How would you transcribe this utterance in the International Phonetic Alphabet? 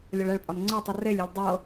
lʲ ɔ ɭ ɛ ɭ pʼ ɒ n ŋ͡ǀ ɤ tˤ u r e lʲ e lʲ dˤ ɤ

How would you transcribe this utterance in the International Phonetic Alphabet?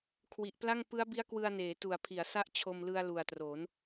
kʰ w i˨˩ ʔ p l a˥˩ ŋ p ɯ˦˥ a̯ b i˦˥ a̯ k w ɯ˧ a̯ n eː˩˦ t u˨˩ a̯ pʰ i˩˦ a̯ s a˥˩ ʔ t͡ɕʰ o˧ m l ɯ˧ a̯ l u˨˩ a̯ t r o˩˦ n

